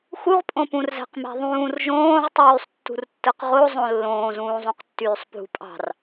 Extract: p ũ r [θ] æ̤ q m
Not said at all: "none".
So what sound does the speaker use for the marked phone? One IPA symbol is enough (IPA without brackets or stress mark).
z